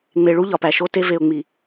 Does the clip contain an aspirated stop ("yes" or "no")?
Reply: no